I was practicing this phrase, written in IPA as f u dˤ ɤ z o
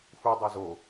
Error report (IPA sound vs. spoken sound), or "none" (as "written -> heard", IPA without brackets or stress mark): ɤ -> o